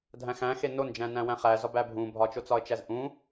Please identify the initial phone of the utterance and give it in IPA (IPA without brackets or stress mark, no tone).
dʱ